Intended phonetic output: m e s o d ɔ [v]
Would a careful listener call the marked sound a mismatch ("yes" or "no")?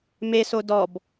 yes